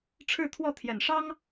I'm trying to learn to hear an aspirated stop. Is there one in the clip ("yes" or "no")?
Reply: yes